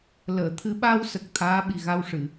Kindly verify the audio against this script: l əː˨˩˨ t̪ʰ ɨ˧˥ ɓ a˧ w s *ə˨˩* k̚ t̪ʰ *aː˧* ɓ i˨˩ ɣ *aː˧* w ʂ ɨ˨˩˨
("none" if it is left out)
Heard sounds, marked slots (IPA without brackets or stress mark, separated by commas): ə˨˩, aː˧˥, a˧